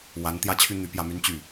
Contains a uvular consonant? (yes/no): no